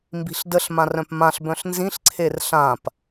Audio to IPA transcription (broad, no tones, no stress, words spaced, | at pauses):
mbi̤ɬdəɬ mãrœ̃pmãɬ bœ̃ɬnzĩɬ ǀʰerɬãp